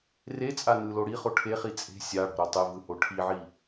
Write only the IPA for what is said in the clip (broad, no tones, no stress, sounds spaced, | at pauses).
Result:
r e t͡sʼ a n ɯ l o ɽ i χ o ʈʰ e χ i t͡sʼ e̤ sʲ a ɽ ɔ̤ ɾ o tˤ e v ɯ h o ʈʰ i ʕ i